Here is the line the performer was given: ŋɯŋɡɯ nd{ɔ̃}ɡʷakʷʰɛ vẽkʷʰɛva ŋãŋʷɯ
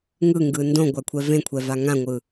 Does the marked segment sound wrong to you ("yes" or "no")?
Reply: yes